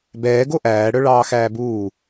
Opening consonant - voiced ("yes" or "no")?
yes